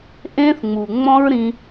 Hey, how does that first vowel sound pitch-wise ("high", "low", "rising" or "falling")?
high